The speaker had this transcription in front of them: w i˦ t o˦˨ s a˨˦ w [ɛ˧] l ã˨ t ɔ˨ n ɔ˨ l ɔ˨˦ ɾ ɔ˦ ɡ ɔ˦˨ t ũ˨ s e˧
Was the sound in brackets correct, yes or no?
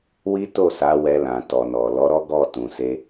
yes